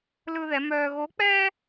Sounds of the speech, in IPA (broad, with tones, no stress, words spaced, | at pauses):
lɯ˥ðɛ˧˥ mœː˧ɣo˧˥k͡pɛː˥